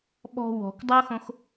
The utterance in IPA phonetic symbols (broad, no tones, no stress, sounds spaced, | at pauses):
ɓ ɔ̤ w ɔ̤ k dˤ o x õ x